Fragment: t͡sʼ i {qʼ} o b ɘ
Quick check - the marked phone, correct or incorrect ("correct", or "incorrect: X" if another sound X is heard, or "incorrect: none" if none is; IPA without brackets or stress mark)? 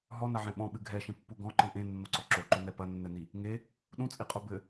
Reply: correct